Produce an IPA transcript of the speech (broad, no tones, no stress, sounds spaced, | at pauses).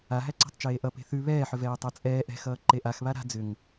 a ɦ æ ǀ a̤ tˤ t͡ʃ eː ʔ ʌ p e̤ θ ʉ β ɛː ħ ʏ v ɛː tˤ æ t͡sʼ ɛː ʔ ɛ̤ x ʌː ǃ e ʔ a x β a ɾ a̤ d͡z ʏ ŋ